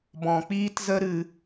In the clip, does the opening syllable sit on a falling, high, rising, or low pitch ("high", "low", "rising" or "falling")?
low